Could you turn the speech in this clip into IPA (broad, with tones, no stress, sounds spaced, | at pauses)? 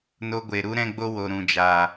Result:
n o˧ ɡʷ e˨ ɾ u˦ ɾ ɛ̃˦ ɡ͡b o˦ w o˨ ɾ ũ˨ d͡ʒ aː˨